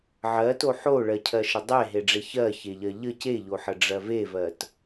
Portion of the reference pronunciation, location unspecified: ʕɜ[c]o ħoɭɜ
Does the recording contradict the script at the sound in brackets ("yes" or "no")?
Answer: yes